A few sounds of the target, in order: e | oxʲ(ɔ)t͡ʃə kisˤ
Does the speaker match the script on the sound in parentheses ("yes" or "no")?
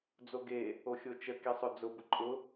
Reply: no